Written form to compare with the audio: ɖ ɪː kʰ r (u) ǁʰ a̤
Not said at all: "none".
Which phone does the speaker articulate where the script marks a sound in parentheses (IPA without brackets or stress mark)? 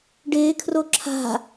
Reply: o